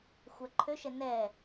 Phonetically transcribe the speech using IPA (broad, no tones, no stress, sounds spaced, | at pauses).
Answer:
xʷ æ ǃʰ ø ʃ ɛ n ɛ